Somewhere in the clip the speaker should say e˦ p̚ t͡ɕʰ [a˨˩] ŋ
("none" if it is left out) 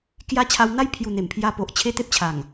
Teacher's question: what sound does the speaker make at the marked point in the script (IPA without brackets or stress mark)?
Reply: a˨˩